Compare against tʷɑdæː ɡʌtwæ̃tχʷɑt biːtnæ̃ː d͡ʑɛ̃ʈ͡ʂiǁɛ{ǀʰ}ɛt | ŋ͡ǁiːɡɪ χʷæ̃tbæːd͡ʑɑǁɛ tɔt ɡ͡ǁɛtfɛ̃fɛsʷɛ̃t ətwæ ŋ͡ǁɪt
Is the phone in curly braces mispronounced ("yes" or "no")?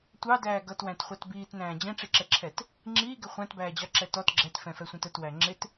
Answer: yes